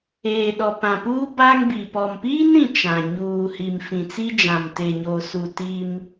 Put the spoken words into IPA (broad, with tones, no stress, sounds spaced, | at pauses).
eː˨ ɗ ɔ˨ p ã˨ p uː˦ b a˦ ŋ b i˨ p ɔ˨ m p iː˦ n ɾ ĩ˨ t͡ʃ ã˨ ɲ uː˨ h i˨ m f ĩ˨ t͡s i˦ d͡ʒ ã˨ m t e˨ ɲ o˨ s u˨ t i˦ m